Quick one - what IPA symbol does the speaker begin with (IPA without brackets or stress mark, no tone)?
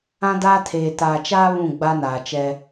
ã